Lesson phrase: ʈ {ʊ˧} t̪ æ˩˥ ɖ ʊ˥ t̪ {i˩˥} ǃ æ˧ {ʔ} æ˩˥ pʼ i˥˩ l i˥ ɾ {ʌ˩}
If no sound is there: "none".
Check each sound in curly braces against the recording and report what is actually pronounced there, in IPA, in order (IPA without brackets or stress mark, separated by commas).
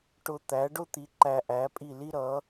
ʊ˧, i˩˥, ʔ, ʌ˩˥